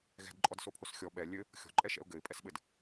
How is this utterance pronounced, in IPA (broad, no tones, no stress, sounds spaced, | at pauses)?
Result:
ɣ ɛ̤ d ǃʼ ɔ d s o pʰ o s xʲ ɔ ɓ ɛ lʲ ɘ | xʲ ɔ̤ ǃʼ ɛ ʃ ɛ̰ ʊ̯ ɡ ɘ ɪ̯ pʼ ɛ s ɓ ɘ d